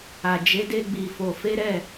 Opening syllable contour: low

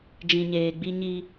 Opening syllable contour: low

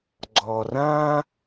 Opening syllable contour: low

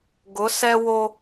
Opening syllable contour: rising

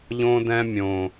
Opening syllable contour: high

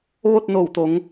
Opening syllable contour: falling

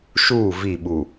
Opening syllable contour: falling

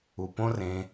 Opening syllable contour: low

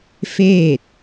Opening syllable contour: falling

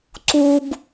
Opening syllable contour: high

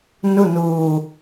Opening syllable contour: falling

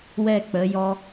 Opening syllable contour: falling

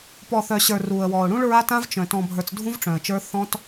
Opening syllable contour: low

